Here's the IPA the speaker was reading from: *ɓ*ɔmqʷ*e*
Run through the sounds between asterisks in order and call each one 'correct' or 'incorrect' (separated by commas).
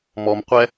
incorrect, incorrect